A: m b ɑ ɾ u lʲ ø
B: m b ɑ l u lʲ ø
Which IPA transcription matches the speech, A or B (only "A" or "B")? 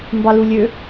B